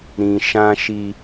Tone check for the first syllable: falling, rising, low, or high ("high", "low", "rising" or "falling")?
low